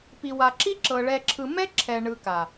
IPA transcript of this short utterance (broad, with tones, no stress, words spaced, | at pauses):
pi˨wa˨ǁi˦ǁɤ˨ ɭɛ˨ ǁʰɯ˨mɛ˦ ǁʰɛ˨ ɳɯ˨ka˨